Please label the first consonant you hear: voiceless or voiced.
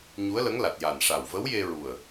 voiced